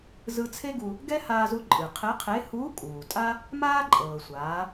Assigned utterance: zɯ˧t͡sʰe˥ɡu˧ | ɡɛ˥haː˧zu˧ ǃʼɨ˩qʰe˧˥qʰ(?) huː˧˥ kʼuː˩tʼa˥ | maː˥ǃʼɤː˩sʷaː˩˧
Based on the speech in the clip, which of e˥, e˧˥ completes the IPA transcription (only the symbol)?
e˧˥